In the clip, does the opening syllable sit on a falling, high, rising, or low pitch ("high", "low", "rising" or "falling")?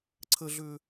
high